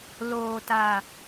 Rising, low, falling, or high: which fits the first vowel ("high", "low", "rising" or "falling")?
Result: low